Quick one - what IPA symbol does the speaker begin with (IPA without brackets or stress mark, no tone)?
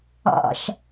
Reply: ɑ̰